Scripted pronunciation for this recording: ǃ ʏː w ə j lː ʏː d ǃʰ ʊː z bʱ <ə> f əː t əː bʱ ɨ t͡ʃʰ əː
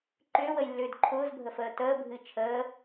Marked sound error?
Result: no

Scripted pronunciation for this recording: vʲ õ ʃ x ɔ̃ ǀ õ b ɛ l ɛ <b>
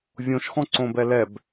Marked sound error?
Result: no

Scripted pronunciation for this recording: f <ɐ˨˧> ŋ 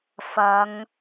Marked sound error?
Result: no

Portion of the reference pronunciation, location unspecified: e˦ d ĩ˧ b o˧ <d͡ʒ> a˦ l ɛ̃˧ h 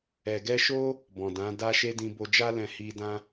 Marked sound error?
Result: no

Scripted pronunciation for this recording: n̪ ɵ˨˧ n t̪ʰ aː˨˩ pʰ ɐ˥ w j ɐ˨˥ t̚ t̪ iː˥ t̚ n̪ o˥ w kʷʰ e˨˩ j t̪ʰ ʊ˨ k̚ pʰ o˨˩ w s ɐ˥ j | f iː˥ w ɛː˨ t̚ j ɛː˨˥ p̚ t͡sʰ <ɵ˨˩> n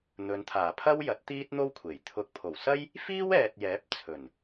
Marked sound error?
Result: no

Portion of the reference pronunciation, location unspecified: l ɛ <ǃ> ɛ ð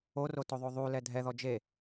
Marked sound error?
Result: yes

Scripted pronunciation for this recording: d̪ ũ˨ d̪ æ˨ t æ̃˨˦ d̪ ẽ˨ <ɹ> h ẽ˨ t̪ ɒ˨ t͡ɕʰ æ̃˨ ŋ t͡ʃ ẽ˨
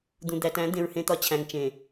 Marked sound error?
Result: no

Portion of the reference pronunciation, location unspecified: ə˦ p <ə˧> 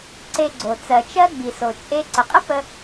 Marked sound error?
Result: no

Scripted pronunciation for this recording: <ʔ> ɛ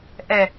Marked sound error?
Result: no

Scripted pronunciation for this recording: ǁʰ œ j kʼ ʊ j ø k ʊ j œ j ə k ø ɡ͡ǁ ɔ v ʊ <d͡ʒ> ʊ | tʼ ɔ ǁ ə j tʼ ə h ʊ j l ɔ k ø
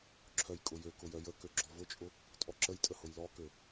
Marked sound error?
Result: yes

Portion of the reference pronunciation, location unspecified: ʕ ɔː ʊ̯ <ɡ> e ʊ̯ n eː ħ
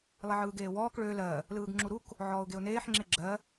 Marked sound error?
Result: no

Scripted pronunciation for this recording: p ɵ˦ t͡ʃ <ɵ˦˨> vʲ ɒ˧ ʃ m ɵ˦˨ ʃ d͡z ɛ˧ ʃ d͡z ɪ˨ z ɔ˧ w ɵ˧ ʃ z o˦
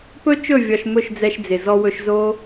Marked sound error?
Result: no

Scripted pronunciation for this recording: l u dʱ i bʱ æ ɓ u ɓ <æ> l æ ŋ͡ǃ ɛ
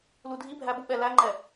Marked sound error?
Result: yes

